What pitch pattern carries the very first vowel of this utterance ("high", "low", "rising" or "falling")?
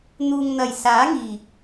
low